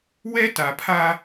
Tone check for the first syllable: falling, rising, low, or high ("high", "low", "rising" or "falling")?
high